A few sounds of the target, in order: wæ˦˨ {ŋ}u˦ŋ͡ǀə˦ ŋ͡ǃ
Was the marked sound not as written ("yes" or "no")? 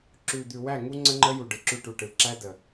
no